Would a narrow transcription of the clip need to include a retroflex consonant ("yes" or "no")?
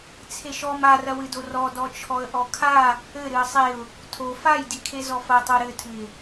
no